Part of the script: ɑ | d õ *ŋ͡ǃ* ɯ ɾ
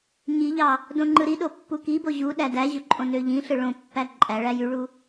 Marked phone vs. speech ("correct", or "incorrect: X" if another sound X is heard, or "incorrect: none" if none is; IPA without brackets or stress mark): correct